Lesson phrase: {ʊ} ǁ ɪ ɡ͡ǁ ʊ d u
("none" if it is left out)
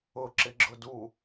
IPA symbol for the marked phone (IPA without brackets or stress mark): ʊ